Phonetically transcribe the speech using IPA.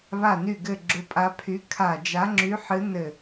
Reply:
βa˦˨ny˦˨ɡɘ˦˨ ɡ͡ǁʊ˧˥pʼa˧˥pʰy˧˥ kʰa˦˨ d͡ʒa˧˥ŋ͡ǁy˧˥ħɨ˧˥ nɘ˦˨

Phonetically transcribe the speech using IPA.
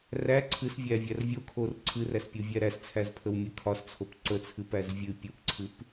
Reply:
ræ ǀʰɨsvʲævʲær vʲokʰor ǀʰɨræspʲuvʲæ ɾæst͡sʰæzpʰəwmʲɨ kʰɒst͡sʰop ǀət͡sʰɨpæz vʲɨ pʲupǀʰɨp

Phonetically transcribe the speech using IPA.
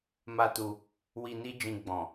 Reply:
ma˦tu˧ | wi˧ni˦ d͡ʒĩ˧ɡ͡bɔ̃˨

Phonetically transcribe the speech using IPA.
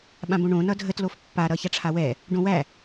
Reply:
ɓãbõɳõ nʌdʱət lofpːa ɾʌçaʈ͡ʂʰawɛ | ɖõwæ

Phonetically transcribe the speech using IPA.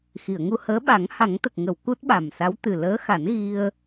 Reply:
xi˨˩˨ə̯ŋu˧həː˧˥ ɓa˨˩˦ŋha˨˩˦ŋt̪ə˨˩k̚ ŋə˨˩˨w ku˦˥t̚ɓa˨˩msa˧˥w t̪ɨ˨˩ləː˧˥xa˨˩˦n ɣi˧ə̯

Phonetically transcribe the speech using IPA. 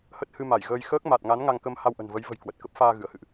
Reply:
hə˦˥t̚hɨ˧ma˧˩jɣəː˧j xəː˦˥k̚ma˨˩t̚ŋa˨˦n ŋa˧ŋkə˧m ha˧wʔə̤˨˩nvə˨˦j və̤˨˩j kwə˨˩t̚ kə˦˥p̚faː˧ ɣɨ˧˩ə̯hɨ̰˧˨ʔ

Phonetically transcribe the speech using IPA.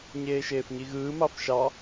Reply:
ɲeːʃeːfɲiɣɯː mɑfʃɑ

